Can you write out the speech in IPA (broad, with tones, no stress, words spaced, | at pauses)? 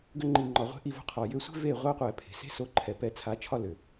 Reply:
ɡʏ˧ ŋ͡ǃi˨ŋ͡ǃɒ˨ʁʷe̤˧ ʔi˧vo̤˧qʰɒ˨ jʏ˧sʷe̤˦ ve˦˨ʁʷa˦qʷɛ˨ pʰe̤˨se̤˦so˧ ǃʰɛ˨pɛ˧t͡sʰa˨˦t͡ʃʰɒ˦ lʏ˨